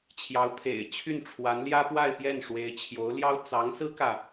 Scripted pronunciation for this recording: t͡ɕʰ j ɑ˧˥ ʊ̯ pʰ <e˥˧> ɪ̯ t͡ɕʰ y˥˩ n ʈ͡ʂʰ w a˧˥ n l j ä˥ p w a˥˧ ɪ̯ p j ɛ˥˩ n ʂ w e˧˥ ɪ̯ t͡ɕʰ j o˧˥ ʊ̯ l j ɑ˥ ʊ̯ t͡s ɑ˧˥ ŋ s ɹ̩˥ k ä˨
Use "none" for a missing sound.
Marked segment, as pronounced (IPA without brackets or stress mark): ḛ˨˩